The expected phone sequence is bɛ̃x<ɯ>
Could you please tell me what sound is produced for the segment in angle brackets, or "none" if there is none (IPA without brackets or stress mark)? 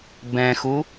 u